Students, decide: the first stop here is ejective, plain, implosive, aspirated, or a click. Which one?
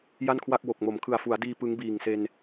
aspirated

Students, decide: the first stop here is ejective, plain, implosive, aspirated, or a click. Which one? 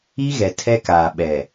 aspirated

